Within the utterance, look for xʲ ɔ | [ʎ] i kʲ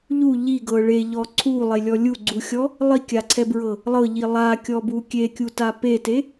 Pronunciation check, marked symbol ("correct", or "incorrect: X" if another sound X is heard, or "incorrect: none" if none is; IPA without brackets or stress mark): incorrect: lˠ